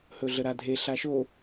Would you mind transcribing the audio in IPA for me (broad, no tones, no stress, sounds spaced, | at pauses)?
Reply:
h ɵ ɮ ə ɾ a dʱ e ɬ a ʃ o